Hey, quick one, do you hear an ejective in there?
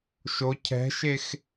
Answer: no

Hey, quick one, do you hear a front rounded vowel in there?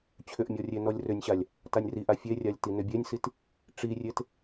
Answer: yes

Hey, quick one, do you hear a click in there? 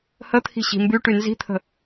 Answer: no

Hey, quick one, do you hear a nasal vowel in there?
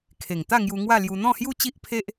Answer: yes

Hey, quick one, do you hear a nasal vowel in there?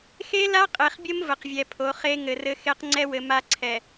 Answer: no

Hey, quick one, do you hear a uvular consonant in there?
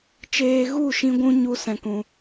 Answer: no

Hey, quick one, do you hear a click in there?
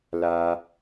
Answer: no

